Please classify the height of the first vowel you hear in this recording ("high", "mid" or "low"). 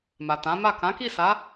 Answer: low